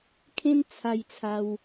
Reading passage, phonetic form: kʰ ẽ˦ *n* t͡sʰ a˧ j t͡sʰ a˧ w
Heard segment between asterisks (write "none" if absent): n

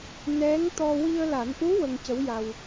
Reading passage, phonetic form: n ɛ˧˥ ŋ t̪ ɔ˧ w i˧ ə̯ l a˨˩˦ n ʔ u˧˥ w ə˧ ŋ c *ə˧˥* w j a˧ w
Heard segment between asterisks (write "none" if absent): ə˧˥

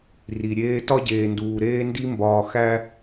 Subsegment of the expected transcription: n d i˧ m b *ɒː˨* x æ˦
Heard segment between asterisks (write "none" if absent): ɒː˨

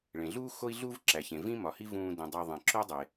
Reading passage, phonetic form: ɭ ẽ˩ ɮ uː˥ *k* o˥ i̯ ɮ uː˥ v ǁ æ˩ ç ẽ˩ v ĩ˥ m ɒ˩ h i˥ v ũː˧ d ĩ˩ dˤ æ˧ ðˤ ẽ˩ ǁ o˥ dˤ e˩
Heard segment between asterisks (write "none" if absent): x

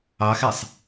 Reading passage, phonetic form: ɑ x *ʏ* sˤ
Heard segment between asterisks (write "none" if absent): ɛ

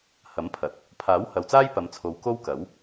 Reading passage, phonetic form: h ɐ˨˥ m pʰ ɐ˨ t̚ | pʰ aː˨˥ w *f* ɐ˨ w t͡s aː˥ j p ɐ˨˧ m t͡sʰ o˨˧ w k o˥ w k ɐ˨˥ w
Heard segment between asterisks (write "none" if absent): h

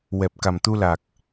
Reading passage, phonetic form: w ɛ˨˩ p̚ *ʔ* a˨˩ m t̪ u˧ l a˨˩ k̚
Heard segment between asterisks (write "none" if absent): k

